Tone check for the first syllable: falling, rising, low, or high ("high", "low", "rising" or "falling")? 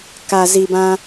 low